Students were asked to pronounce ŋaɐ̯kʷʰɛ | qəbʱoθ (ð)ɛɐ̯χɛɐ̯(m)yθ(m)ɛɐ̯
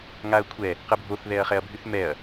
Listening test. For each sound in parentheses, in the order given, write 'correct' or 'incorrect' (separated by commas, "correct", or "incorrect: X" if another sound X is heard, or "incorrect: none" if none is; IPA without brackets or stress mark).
correct, incorrect: bʱ, correct